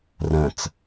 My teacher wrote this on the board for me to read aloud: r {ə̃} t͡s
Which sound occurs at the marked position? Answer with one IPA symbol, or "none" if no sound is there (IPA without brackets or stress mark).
ə̃